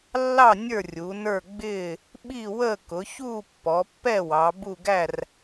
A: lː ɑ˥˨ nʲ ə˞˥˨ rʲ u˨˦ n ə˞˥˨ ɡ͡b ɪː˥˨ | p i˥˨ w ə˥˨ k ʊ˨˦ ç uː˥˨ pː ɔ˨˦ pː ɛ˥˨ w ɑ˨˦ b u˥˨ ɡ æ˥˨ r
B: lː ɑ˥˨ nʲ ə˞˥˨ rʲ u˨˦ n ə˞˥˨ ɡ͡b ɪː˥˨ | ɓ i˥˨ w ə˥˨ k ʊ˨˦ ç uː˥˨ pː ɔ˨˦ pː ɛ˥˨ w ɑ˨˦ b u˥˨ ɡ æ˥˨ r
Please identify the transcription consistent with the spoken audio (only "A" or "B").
B